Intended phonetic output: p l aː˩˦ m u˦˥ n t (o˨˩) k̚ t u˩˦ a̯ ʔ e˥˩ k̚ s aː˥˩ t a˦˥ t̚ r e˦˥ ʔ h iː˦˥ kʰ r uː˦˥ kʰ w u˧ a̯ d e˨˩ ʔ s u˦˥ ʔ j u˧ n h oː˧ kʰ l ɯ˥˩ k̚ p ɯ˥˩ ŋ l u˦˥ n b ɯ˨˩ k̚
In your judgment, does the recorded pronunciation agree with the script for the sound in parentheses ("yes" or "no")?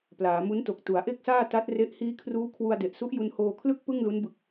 yes